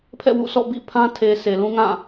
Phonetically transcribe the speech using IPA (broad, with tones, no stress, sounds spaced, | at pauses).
pʰ ɛ̰˦˨ w ṵ˦˨ s ɔ̰˦˨ b ḭ˦˨ pʰ ã˦ tʰ e˨ s e˨ l ũ˦ ŋ ã˦˨